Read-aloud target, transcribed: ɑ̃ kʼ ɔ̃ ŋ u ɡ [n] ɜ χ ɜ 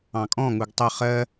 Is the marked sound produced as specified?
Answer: no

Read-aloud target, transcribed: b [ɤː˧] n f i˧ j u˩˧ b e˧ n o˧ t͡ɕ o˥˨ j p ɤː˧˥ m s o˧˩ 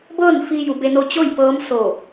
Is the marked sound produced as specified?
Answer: no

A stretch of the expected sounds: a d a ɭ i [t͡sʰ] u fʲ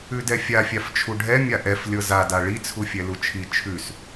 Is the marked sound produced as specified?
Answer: yes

